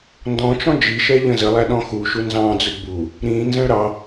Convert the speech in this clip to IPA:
ndɔ̃t͡ʃɔ̃ d͡ʒiʃɛ ʎə̃zəlˠæ ɗɔ̃xuʃu nzɑ̃d͡zʊd bu | ɾĩnzə̃ɭ ɾɑ

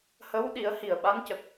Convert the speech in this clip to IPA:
hə˧˥w ɗi˨˩˦ə̯hi˨˩ə̯ɓa˧˥ncə˨˩k̚

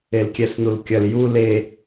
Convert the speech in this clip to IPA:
elkʲɛsnulkʲɐl ju le

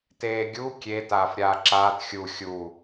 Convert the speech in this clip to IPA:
teːɡʲu kʲe taːfɾʲaːǁaːt xʲu xʲuː

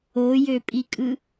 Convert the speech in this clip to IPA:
ojøpʼikʼɯ

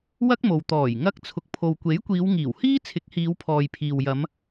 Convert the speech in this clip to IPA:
wɐ˥k̚mo˨w t̪ɔː˨˩jŋɐ˧k̚ t͡sʰʊ˨k̚pʰo˨wkʷe˨˥jkʷiː˨˧w ŋiː˨˩whiː˥t͡sʰɪ˨˥k̚hiː˨˧w pʰɔː˨jpʰiː˨wjɐ˨˧m

